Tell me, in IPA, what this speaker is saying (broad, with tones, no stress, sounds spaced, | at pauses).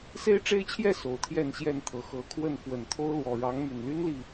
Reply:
s e˦ ɪ̯ ʈ͡ʂ e˦ ɪ̯ t͡ɕʰ j ɛ˥˨ s o˨˩ ʊ̯ t̪ʰ j ɛ˥˨ n ɕ j ɛ˥˨ n t̪ʰ ɤ˨˦ x ɤ˨˦ kʰ w ə˥˨ n f w ə˨˩ n t̪ʰ o˦ ʊ̯ l w ɔ˨˩ ɻ ɑ˨˦ ŋ m y˨˩ n l y˦ n l i˨